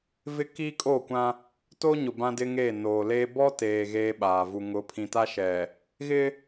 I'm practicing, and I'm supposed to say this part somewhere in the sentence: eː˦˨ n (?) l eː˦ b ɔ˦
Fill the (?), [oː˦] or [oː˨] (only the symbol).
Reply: oː˨